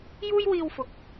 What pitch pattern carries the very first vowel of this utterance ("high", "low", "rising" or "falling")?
high